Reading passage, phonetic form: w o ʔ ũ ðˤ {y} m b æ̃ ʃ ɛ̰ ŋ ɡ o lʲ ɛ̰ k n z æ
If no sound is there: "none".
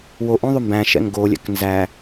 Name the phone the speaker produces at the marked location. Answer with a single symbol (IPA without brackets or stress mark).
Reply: y